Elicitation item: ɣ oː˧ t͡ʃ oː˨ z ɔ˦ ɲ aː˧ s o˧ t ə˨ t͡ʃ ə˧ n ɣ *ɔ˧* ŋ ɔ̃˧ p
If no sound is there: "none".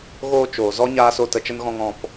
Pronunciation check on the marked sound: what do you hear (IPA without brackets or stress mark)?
ɔ̃˧